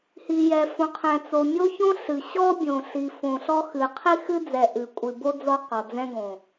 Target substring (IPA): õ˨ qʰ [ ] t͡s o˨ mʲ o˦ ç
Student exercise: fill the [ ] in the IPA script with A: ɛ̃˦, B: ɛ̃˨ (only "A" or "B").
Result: B